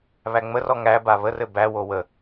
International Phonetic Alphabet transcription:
β æ ŋ͡m ə r ɔ ŋ æ b a β ə r ɘ b æ w o w ə

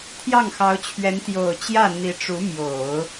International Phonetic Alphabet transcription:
t̪ʰ j ɑ˥˩ ŋ x ɑ˧˥ ʊ̯ t͡ɕʰ ɥ ɛ˧˥ n t̪ j o˨˩ ʊ̯ t͡ɕ j ä˥˩ n̪ i˧˥ ʈ͡ʂ u˧˥ m j o˨˩˦ ʊ̯

